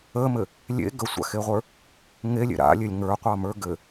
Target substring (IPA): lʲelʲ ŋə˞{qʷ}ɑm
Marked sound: correct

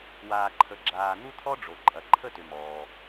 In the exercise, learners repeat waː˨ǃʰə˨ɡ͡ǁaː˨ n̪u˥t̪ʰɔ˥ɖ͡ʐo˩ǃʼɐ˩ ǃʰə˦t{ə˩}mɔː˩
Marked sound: incorrect: ʏ˩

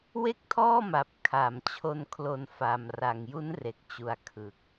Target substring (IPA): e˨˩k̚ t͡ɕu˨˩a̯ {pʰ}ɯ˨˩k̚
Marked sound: incorrect: kʰ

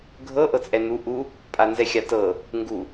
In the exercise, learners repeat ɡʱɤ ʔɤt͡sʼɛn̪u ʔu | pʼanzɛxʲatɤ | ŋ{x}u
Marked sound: incorrect: ɡ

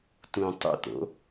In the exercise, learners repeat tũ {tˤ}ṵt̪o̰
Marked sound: correct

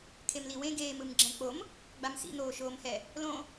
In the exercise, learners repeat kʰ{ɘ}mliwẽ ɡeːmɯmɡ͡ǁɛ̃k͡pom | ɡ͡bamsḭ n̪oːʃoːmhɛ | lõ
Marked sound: incorrect: e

